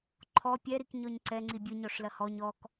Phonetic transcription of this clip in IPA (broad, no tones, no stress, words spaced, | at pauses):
ǃʰɔ pʲɛɾikɲɔɲ ǀɛŋ͡ǀi bʲɨɲɔʂlɐ hɔɲ ɔk